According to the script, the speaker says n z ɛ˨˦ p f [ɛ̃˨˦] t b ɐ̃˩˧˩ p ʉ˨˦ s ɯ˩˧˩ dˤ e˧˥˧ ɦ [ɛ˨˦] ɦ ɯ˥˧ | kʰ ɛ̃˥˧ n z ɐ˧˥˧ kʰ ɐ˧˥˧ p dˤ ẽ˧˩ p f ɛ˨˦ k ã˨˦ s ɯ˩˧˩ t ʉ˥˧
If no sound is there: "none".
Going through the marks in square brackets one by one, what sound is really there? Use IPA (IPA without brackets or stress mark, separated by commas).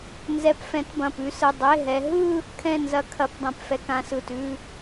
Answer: ɛ̃˨˦, ɛ˨˦